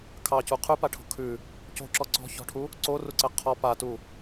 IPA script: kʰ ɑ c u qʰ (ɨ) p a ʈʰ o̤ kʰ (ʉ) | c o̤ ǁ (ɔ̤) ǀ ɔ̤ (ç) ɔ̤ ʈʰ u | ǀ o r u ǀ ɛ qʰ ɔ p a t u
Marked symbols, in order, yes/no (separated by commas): no, yes, no, yes